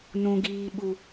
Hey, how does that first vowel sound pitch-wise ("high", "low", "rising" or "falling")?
high